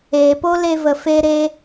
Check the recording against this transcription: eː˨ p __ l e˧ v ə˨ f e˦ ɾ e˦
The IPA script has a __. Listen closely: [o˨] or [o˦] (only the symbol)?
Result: o˦